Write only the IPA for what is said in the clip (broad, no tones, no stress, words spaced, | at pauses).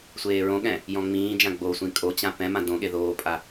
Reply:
sʷeːɹõɠɛ̃ | jɔ̃ŋ͡mĩːd͡ʒã ɡ͡bosʷĩ kʼot͡ɕã pɛ̃mã dõɠe ðoːpʼa